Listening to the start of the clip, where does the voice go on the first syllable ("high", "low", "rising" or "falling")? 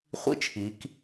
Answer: high